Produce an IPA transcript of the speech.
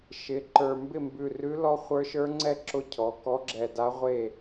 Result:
ʃɪ˩˧˩ǃə˞˧˩ mbɪ˥˩mbʉ˧˩rʉ˧˥lɔ˧˥ χʷə˞˧˥ʃə˞˧˥ŋ͡ǀɛ˥˩ ǁʊ˧˥ cʰɔ˩˧˩kɔ˧˥ɡ͡ǁɛ˧˩da˧˥ ʁʷe˥˩

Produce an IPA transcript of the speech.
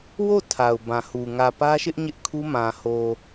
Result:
wo˦˨ tʰa˨ʊ̯bã˨hu˨ ŋä˨pä˦ʃɪ˦ʔ ɲɪ˦ʔkʰu˦mã˨ho˨

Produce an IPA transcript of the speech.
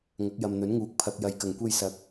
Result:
ŋɐ˨˥k̚jɐ˨mn̪ɵ˨˥nŋuː˨k̚ pʰɐ˨k̚jɐ˨j kɐ˨˩ŋkʷe˧jsɐ˨˥k̚

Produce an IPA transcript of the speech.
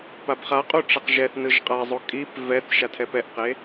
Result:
pabχaqʼu ʈ͡ʂaqʒɛθnɯʒ qʼazˤo kʼip vɛθ ʃatʰɛpɛʔqe

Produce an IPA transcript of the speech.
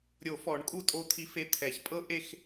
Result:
ɾʲo˨˩˦fɔ˨˩˦ɳkʼu˧ tʼo˧t̪ʰi˧fe˧t̪ʰɛ˨˩˦ç pʼɤ˥ʔe˥˧x

